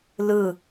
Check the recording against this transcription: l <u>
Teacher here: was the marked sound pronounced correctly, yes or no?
no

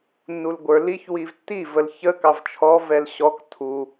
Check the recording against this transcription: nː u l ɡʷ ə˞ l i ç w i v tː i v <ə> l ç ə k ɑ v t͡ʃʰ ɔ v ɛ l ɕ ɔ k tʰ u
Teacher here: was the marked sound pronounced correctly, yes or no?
yes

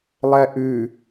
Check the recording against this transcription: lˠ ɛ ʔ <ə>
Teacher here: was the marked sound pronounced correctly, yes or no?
no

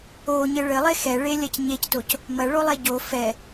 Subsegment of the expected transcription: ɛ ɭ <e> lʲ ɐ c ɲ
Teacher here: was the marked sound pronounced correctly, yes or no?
yes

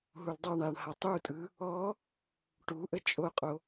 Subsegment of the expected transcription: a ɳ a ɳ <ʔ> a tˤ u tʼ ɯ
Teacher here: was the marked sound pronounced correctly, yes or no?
no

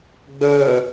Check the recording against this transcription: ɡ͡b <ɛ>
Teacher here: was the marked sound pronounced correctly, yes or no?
no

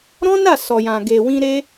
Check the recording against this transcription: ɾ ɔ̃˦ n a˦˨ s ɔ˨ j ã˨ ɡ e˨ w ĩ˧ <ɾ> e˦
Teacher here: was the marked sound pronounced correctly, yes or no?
yes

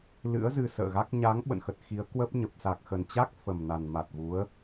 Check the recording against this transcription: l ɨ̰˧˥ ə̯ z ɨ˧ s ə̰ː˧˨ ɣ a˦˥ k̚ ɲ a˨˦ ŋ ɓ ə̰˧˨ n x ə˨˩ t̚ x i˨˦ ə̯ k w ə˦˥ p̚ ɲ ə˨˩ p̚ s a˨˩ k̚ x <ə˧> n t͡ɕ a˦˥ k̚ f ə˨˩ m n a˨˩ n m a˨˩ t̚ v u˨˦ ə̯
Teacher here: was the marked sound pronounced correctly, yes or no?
no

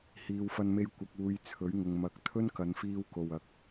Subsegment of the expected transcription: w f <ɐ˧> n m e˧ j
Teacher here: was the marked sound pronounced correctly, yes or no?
yes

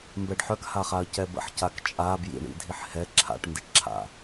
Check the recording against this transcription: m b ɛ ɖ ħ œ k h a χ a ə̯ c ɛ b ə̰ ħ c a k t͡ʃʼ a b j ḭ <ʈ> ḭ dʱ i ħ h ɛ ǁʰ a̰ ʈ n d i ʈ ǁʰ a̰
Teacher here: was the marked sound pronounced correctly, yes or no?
no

